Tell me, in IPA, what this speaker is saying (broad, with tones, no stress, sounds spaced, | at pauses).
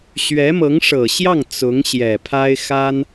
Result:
ɕ ɥ ɛ˧˥ m ɤ˧˥ ŋ ʂ ɤ˨˩ ɕ j ɑ˥˩ ŋ t͡s ʊ˧˥ ŋ ɕ j ɛ˨˩ pʰ a˥ ɪ̯ x a˥ n